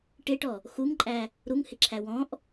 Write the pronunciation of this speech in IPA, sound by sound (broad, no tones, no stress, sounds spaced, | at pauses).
ʈ ɪ ʈ ɔ | x u ŋ ǃʼ æ | ɾ u ŋ h ɪ ǁʰ æ w ɔ̃ ʔ